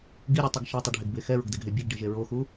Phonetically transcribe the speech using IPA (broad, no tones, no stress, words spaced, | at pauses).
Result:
ɡiɾʲutˤiɡ ʃatˤɯɖʱeɡbe xɛɹoɡdɛɡɦe bʲeɡɖiʒe ɹoxu